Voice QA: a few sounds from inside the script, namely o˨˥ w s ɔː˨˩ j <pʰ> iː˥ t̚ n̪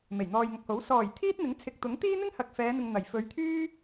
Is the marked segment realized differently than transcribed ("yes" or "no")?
yes